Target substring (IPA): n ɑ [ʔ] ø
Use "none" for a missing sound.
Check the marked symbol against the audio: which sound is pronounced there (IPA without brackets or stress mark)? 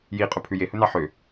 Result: ħ